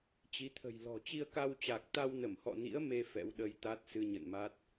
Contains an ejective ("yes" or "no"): no